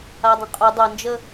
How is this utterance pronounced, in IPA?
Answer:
a dˤ ə̃ qʼ ʊ dˤ ɐ n d͡ʒ ə

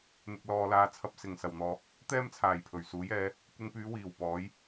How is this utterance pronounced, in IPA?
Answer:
n̪ ɪ˧ k̚ l ɔː˧ l aː˧ t͡sʰ ɐ˧ p̚ s ɪ˨˩ ŋ s ɐ˨˩ w n̪ ɔː˨ | t̪ ɛː˥ m t͡sʰ aː˨˩ j pʰ ɵ˨˩ ɥ s uː˨˥ j ɛː˨˥ | kʷ ɪ˧ ŋ p yː˨˧ w iː˨˩ w p ɔː˨˥ j

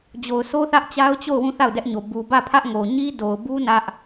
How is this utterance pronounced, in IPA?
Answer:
d͡ʑ o˨ ʊ̯ sʰ o˦ θ ä˦ ʔ t͡ɕ a˦ ʊ̯ t͡ɕ o˦˨ ʊ̯ w ũ˦˨ θ a˦˨ ʊ̯ d ɛ˦ ʔ ɲ o˨ b u˨ b ä˦˨ pʰ ä˦ ʔ ŋ o˨ ɲ i˦ d o˨ ʊ̯ b u˦ n ä˦ ʔ

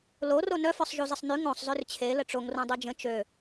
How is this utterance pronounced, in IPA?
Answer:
l o r o n œ f œ sˤ ʒ u z ə sˤ n y ŋ õ sˤ z ø r t͡ɕʰ e l ə ʈ͡ʂ o ŋ r õ dˤ ø d͡ʒ ə̃ t͡ʃ ø

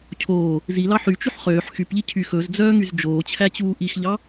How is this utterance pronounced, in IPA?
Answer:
cʰ oː | z i l ɑ ħ y t͡ʃ y ħ χ øː ħ x y p ʎ i cʰ y x ɵ z d͡z œː ŋ y z d͡ʒ oː t͡ɕʰ æ t͡ɕ uː ʔ i x ʎ ɑ

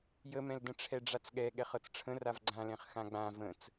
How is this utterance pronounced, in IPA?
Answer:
j ə m ɛ̃ l d ə̃ ʈ͡ʂʰ ɛ ɖ͡ʐ a t͡s ɠ ɛ ɠ ɛ χ ɤ t͡s ʈ͡ʂʰ ə̃ r a v ɡ͡ǀ ã l ɛ̃ χ x ã ɡ͡b ã v ə̃ t͡s

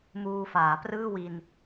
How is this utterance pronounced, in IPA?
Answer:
m uː˧ f aː˩˦ p r ɯː˥˩ w i˧ n

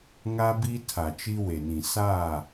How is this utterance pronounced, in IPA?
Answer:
ŋ a˦ b i˦ tʰ a˨ t͡ʃ i˦ w e˨ n ĩ˨ s aː˦˨

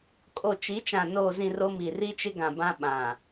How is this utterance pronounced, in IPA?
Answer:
kʼ o˨ t͡ʃ i˨˦ t͡ʃ ã˨ n oː˨ z ĩ˨ r o˦ m i˨ r i˦ t͡ʃ ɪ˦ ɡ ã˨ b ã˦ ɓ ã˨

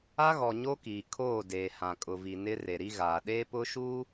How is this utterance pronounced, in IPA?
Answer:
a˦ ɣ ɔ˨ ɲ o˦ k iː˨ kʰ oː˦˨ d eː˨ h ã˨ kʼ ʊ˨ v i˨ n ɪ˦ r e˨ ɾ i˦ ɣ aː˨ ɗ eː˦ p ʊ˦ ʃ u˦

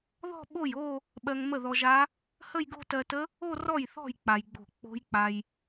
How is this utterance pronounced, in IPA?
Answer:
ð ɔ̤˥˧ ɓ o˥˩ j o˥˧ | ɓ ɜ˧ ŋ m ə˥˩ ð ɔ˧ ʒ a˦˥ | h ə˥˧ j ɡ o̤˥˧ t ɜ˧ t ə˦˥ | o˥˧ r ɔ˥˩ j θ ɔ̤˥˩ j k͡p a˧ j ɡ͡b o̤˥˩ k͡p o̤˦˥ j k͡p a˧ j

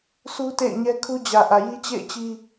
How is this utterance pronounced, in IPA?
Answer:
sʰ u˦ t ḛ˦˨ ɪ̯ ɲ ɛ˦ kʰ u˦ d͡ʑ ä˨ ʔ ä˨ j i˦ t͡ɕ ḛ˦˨ ɪ̯ t͡ɕ i˦

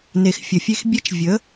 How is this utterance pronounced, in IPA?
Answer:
n e˨ x fʲ ə˨ fʲ e˦ x bʲ e˦ t͡ʃ vʲ ə˨˦

